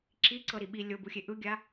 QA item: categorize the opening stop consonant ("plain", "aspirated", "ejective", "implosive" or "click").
click